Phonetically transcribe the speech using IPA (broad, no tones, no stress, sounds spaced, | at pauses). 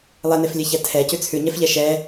lˠ e n e f lʲ ɛ ç æ tʰ ɛ c ʉ t͡sʰ ʉ ɲ ɛ f ʎ ɛ ʃ ɛ